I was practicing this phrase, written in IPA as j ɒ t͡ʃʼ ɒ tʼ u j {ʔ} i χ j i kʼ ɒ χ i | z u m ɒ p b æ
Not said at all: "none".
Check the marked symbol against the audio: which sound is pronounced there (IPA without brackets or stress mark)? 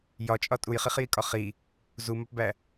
χ